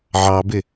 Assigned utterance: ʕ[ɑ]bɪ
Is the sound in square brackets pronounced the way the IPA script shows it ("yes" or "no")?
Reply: yes